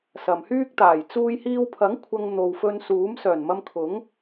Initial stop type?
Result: plain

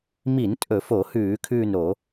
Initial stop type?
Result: ejective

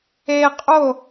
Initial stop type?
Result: ejective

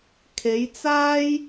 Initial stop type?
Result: aspirated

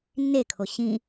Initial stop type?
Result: aspirated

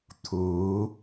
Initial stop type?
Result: aspirated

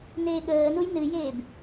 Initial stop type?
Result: implosive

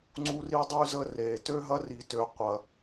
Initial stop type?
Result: click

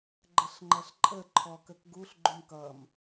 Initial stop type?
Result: click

